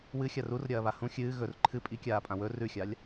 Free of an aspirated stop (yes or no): no